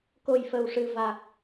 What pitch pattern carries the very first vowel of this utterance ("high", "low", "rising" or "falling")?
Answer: low